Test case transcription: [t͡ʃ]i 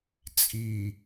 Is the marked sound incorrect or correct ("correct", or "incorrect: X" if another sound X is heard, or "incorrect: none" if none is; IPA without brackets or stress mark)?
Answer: incorrect: t͡sʼ